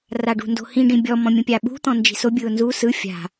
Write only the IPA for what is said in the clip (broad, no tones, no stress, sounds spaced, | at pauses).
r a ɖ ṳ n d o̤ h ĩ ɖ ĩ bʲ ɔ m ɔ̃ mʲ ũ pʲ a ɓ ṳ t̪ ɔ̃ n d͡ʒ i̤ s o bʲ ɯ ʊ̯ n z u s ɯ fʲ a̤